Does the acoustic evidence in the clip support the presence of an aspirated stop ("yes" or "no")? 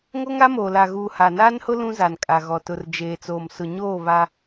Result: no